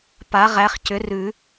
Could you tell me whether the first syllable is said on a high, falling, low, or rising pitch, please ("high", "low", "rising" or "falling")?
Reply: rising